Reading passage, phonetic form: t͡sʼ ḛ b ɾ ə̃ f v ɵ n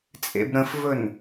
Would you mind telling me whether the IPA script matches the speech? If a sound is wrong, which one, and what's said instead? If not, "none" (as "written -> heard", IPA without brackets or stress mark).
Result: none